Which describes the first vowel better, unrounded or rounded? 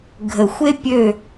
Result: unrounded